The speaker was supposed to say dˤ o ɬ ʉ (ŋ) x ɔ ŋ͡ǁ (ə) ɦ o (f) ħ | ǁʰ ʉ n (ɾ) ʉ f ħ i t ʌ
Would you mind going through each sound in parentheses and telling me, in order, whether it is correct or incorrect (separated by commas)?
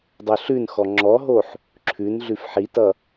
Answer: incorrect, incorrect, incorrect, incorrect